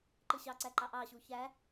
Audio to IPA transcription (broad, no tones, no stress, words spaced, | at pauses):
ǃɯɕɑǀæǃɑ ʔɑɕu çæ